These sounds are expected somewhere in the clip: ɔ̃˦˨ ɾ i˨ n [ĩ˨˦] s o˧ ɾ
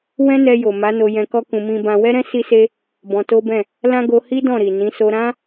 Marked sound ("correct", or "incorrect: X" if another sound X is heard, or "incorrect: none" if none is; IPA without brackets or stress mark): correct